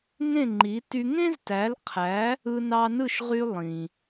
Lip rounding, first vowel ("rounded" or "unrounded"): unrounded